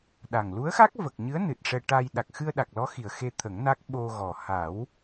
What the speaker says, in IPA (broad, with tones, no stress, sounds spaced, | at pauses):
ɗ a˨˩ ŋ l u˧˥ ə̯ x a˦˥ k̚ v ə˨˩ k̚ ɲ ɨ˧˥ ə̯ n ɨ˨˩ t̚ ʂ ɛ˧ ʈ a˧ j ɗ a˨˩ k̚ x ɨ˧ ə̯ ɗ a˨˩ k̚ l ɔ˧˥ x i˨˩ ə̯ x e˧ t̪ʰ ə˨˩˦ ŋ n a˦˥ k̚ ɓ o˧ ɣ ɔ˨˩ h a˨˩˦ w